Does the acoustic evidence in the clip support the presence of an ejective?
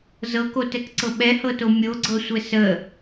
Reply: no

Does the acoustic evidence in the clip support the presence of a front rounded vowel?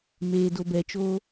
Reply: no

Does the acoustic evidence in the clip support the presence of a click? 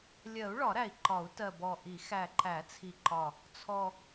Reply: yes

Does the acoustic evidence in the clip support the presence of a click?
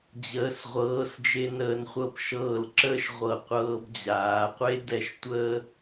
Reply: yes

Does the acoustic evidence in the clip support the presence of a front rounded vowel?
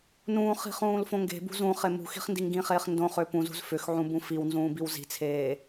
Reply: yes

